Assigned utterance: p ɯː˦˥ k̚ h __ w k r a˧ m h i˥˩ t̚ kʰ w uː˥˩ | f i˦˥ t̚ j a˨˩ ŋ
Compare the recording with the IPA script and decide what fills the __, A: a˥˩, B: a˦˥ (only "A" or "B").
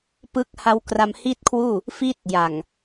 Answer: B